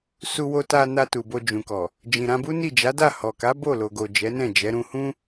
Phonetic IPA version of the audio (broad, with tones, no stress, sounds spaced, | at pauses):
s u˧ w o˧ t a˧ n a˧ t u˨ b o˧ d͡ʒ ũ˨ k ɔ˨ | d͡ʒ ĩ˨ ɾ ã˧ b u˦ n i˦˨ d͡ʒ a˨˦ d a˦˨ h ɔ˨ k a˨˦ b o˦˨ l o˨ ɡ o˨ d͡ʒ ɛ˨˦ n ɛ̃˦˨ d͡ʒ ɛ˨˦ ɾ ũ˧ h ũ˦